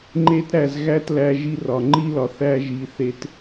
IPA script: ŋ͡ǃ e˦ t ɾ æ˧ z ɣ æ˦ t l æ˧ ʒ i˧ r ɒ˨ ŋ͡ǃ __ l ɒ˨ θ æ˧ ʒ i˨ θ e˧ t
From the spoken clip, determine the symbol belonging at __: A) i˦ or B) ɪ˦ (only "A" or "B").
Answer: A